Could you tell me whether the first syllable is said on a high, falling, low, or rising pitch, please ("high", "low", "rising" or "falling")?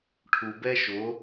low